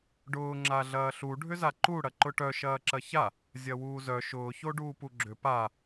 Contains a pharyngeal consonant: no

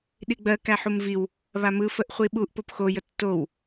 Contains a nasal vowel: no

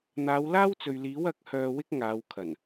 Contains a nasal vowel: no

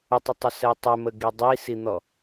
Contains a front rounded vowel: yes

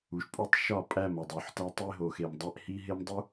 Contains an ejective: yes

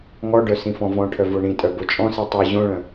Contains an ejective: yes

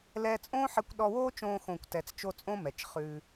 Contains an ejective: yes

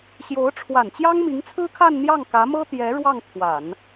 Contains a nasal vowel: no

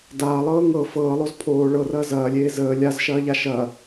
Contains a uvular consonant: no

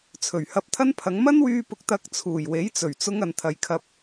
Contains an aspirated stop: yes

